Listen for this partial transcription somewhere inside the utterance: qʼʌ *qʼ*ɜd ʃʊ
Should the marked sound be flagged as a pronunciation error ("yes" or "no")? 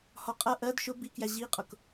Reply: yes